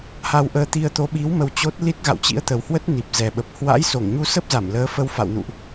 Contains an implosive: yes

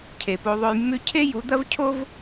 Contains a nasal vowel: no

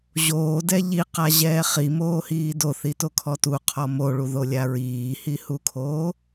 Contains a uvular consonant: yes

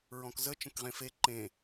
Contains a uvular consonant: yes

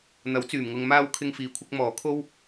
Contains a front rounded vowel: yes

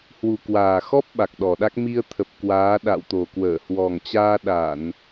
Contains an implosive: yes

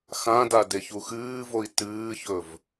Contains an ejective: no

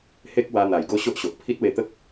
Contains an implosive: no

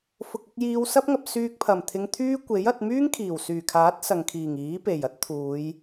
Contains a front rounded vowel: yes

